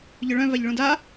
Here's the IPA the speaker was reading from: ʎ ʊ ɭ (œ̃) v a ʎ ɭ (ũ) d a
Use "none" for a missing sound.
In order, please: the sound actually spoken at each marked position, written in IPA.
œ̃, ũ

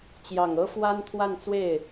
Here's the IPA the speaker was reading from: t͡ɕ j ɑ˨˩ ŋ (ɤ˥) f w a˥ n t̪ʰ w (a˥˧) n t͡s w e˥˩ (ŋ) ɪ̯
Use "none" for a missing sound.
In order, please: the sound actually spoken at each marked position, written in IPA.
ɤ˥, a˥˧, none

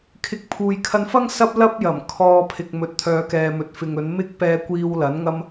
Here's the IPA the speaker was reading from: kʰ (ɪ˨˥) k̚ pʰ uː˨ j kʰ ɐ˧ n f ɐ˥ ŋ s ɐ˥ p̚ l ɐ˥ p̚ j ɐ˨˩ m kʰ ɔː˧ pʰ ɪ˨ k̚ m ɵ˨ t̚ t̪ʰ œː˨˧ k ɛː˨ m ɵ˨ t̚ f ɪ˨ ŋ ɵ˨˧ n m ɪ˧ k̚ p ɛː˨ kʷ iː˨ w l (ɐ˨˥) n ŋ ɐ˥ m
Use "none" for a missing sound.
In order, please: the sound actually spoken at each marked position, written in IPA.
ɪ˨˥, ɐ˨˥

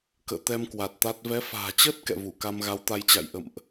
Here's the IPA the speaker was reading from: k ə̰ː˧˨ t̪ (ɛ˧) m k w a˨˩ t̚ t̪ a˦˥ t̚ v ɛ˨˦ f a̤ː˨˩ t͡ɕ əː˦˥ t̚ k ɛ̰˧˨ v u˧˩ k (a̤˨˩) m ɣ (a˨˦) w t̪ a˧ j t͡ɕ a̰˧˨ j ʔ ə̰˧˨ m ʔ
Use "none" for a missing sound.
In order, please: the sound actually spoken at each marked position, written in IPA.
ɛ˧, a˧, a˨˦

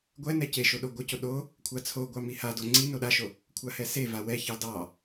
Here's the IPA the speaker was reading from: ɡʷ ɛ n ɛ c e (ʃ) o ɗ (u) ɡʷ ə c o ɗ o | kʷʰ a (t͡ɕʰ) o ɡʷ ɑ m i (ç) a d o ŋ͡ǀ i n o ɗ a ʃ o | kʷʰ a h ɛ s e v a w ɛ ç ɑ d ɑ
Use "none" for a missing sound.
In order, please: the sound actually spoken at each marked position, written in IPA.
ʃ, o, t͡sʰ, h

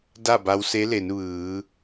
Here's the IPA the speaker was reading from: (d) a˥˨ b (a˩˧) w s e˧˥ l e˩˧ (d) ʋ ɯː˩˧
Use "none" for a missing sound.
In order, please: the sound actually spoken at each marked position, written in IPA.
d, a˧, n

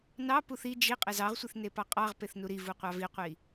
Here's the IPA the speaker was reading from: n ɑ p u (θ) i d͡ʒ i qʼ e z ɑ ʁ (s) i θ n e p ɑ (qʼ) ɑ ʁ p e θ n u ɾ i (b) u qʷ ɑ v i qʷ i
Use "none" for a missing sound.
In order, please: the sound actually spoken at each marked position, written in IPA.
θ, sʷ, qʼ, v

